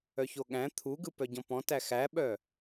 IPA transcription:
œçoɠæ̃ t̪ʰuɡɯ pœɟɔ̃pɔ̃tæ xæɓœ

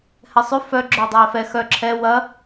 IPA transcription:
hɛsˤʉ fœ ɡ͡ǁœːdˤɛːfɛ xœ ǁʰɛ wɐ

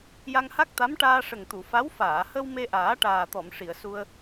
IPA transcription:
ja˧ŋha˦˥k̚t̪a˧˥m ʈaː˧ʂə˨˩ŋt̪u˨˩˨ fa˧˥w faː˨˩˨hə˧w me˧ʔaː˨˩˦ ʈaː˨˩t̪ɔ˨˩˨m ʂi˨˩˨ə̯su˧ə̯

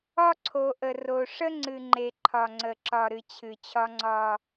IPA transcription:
ɒ˦ǀʰo˨ʔə˨ro˨ ʂə˦ŋ͡ǀɨ˨ŋ͡ǃe˨ ǃʰɒ˨ŋ͡ǀə˨ ǁɒ˨ɾɨ˨ t͡ɕʰɨ˨t͡ɕʰɒ˦ŋ͡ǀɒ˦

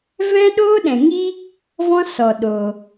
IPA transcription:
vɛ̃˦ɗoː˦ɗɛ̃˨ŋi˦ | vɔ̃˦sɔ˨ ɗoː˧

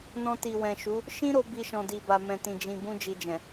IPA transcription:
nɔ̃˧ti˨ wɛ̃˨ʃu˨˦ | ʃĩ˦ɾo˧ bi˧ʃɔ̃˨di˨ ba˨mɛ̃˨tĩ˨ d͡ʒĩ˨bũ˧ d͡ʒi˨d͡ʒɛ̃˨

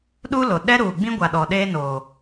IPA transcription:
ɗu˦lo˨ ɗɛ˦ɾuː˨ ɡ͡bĩ˦ɡʷa˨ ɗɔ˨ɗeː˦noː˨

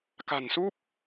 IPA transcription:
ka̤˨˩nsu˦˥p̚

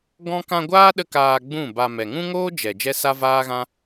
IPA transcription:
ɡɔ̃˦ kã˧ ɡʷaː˦ ɗə˦kaː˧ ɡ͡bũ˦˨ba˧ mɛ˨ŋũ˦ŋoː˦ d͡ʒɛ˨ d͡ʒɛ˦sa˦vaː˦ɣã˦

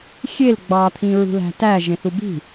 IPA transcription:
xʲel ɡ͡bɑt̪ʰĩɹṳ læ̤tæ ʒẽθubi̤

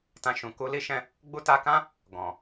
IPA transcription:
tã˧ʃũ˨ ku˧li˦ʃɛ̃˦ | ɡ͡bu˧ta˧kã˦ | ɡɔ̃˨

